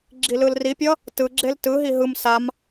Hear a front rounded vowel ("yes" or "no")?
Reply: no